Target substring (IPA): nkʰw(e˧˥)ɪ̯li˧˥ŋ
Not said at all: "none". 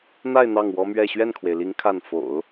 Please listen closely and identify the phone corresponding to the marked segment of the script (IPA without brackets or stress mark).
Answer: e˩